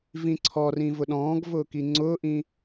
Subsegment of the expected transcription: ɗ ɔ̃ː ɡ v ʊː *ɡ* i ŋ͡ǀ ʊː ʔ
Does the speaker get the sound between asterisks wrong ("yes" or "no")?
yes